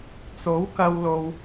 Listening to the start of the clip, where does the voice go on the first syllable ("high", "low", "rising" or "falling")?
rising